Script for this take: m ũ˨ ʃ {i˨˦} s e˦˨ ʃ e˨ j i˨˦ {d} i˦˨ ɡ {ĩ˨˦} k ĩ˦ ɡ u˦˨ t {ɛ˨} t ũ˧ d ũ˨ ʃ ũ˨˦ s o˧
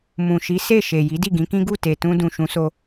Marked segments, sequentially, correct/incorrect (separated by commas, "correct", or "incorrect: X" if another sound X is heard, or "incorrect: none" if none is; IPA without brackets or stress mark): correct, correct, correct, incorrect: e˨